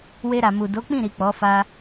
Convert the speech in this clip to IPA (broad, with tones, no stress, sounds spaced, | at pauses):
w e˧ ɾ a˨ m u˨ d o˨˦ k͡p ĩ˦˨ ɾ i˨ k͡p ɔ˨˦ f a˦